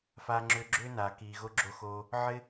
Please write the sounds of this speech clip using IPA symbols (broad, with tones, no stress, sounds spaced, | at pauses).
f aː˧ ŋ͡ǁ ʏː˧ ɡ͡ǁ ʏː˦ n aː˨ k iː˨ ɣ o˧ ɡ͡ǁ o˧ x oː˧ | ʕ ɪ˦